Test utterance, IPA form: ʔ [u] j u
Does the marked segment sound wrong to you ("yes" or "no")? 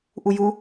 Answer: no